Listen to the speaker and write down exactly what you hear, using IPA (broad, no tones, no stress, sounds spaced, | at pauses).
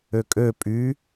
ø kʼ ø pʼ y